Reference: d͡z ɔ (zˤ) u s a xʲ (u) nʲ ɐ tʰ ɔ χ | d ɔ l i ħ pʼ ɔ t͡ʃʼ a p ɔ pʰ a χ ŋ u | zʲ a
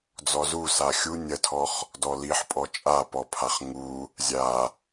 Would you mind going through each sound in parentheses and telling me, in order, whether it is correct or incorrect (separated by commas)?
incorrect, correct